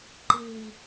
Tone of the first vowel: low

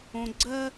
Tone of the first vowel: low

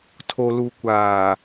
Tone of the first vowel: low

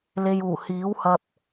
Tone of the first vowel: low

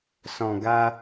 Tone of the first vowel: low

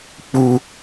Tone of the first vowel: high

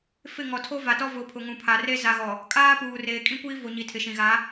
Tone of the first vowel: falling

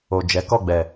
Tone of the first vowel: low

